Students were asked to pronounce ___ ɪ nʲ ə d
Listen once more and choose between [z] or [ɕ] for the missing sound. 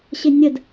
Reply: ɕ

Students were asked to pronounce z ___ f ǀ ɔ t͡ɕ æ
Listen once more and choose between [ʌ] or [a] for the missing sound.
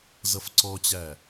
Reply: ʌ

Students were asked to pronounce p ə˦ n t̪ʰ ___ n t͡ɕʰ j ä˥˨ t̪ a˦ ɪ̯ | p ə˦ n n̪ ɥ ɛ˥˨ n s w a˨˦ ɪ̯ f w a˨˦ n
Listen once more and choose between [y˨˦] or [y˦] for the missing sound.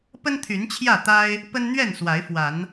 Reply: y˨˦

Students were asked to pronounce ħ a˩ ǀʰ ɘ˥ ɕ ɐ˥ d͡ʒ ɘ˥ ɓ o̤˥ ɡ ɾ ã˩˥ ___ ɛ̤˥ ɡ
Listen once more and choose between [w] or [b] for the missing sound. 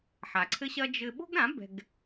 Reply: b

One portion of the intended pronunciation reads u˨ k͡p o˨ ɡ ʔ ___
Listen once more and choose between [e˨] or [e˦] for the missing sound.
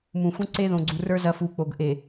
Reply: e˨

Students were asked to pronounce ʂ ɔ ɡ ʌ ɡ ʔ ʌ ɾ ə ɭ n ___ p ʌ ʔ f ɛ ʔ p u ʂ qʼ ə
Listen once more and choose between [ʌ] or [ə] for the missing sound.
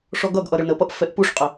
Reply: ə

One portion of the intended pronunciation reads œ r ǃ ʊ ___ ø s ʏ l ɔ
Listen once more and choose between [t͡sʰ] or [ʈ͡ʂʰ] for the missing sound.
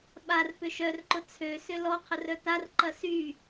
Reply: t͡sʰ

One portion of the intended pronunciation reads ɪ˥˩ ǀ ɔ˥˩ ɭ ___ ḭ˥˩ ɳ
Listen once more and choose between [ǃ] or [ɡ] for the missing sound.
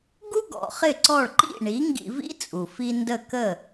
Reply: ǃ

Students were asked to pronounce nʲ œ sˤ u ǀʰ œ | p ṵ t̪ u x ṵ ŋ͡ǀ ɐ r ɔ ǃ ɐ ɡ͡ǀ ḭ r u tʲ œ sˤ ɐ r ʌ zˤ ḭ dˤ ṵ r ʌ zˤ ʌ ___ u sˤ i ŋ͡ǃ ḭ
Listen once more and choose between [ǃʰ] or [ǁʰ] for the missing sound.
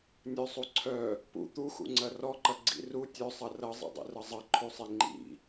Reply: ǃʰ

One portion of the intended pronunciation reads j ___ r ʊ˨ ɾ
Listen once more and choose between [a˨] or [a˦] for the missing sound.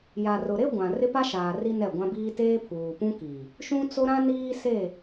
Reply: a˨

